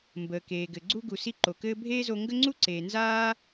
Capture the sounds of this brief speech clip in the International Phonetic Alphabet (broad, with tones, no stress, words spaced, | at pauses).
mbəː˩keː˩ɡɘ˩ ɡ͡ǀu˥ ɡu˩si˧ ǃo˩kɘː˥ bʱeː˥zo˧ ŋɡə˥ŋ͡ǀu˥ǀeː˩ nzaː˥